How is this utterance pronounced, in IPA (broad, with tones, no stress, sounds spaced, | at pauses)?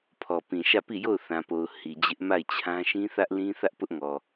pʰ ɔ˨ p ĩ˨ ʃ ä˦˨ p i˦˨ j o˦˨ ʊ̯ θ ã˨ p o˨ ʊ̯ h i˨ d͡ʑ ɪ˦ ʔ m a˦˨ ɪ̯ t͡ɕʰ ã˦ ʃ ĩ˦ θ ä˦ ʔ l ĩ˦ θ ä˦ ʔ p ʊ˦ ʔ ŋ ɔ˨